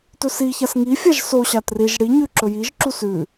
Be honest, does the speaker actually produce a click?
yes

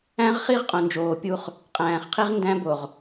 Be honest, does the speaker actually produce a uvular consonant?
yes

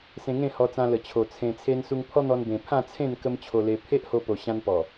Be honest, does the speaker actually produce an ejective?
no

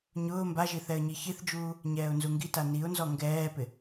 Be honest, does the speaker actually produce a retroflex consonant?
no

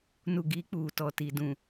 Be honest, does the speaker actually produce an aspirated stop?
no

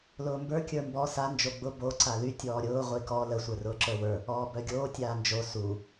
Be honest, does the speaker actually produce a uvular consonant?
yes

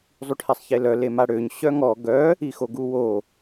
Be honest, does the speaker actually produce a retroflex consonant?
yes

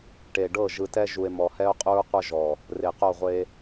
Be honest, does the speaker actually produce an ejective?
yes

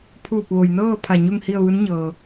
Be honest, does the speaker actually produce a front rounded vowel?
no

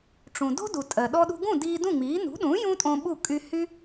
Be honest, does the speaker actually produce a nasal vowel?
yes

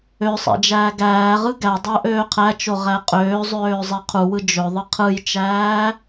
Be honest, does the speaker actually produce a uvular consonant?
yes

